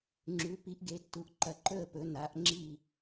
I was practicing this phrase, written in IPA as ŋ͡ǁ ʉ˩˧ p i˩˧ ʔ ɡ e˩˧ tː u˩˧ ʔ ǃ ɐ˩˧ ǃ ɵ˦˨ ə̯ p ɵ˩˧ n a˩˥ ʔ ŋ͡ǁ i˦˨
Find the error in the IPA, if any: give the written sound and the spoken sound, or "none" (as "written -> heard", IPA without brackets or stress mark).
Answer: none